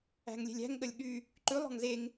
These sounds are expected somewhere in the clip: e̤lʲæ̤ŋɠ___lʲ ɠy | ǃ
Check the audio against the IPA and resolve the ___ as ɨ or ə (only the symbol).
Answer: ə